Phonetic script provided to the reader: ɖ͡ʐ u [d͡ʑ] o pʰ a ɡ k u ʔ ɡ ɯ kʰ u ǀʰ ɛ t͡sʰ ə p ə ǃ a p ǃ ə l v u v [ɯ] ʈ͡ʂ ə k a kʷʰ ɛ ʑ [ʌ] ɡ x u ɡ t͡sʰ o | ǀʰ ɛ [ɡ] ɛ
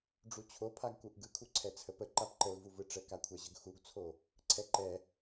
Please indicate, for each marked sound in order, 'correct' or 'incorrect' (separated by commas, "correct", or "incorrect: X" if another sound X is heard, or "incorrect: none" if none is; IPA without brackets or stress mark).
incorrect: t͡ɕʰ, correct, incorrect: ə, incorrect: ǃ